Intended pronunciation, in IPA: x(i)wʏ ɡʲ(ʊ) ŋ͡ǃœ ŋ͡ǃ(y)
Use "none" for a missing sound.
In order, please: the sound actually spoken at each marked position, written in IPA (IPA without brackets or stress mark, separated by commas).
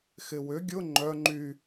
ɪ, ʊ, y